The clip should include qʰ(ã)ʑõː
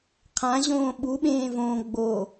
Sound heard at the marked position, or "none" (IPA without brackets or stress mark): ã